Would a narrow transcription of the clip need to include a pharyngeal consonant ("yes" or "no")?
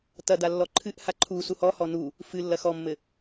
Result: no